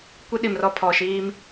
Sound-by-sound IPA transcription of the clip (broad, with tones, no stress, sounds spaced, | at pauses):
kʷ i˦ ɗ i˨ m r ɔ˦˨ pʰ ɔ˨ ʃ iː˦ m